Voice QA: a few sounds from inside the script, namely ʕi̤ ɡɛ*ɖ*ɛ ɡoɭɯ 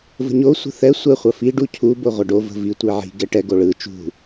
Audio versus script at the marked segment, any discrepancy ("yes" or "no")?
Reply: yes